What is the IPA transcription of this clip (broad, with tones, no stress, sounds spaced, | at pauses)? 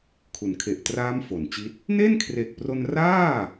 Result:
kʰ u˩˦ n kʰ e˨˩ ʔ t r aː˦˥ m f o˩˦ n t͡ɕ i˦˥ t̚ | n e˥˩ n kʰ r e˨˩ k̚ p r o˧ n r aː˥˩